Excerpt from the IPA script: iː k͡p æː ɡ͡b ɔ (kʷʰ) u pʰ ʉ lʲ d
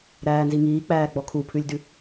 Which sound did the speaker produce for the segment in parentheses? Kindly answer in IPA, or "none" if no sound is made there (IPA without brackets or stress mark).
kʰ